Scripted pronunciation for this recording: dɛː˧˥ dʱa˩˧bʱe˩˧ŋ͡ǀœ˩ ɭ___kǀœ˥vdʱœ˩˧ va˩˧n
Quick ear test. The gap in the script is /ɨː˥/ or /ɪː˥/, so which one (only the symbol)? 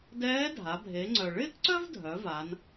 ɪː˥